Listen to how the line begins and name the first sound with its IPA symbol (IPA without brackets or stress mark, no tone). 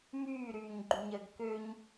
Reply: m